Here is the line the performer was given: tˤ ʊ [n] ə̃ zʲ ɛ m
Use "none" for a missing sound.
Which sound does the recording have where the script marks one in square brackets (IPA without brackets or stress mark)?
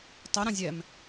ɾ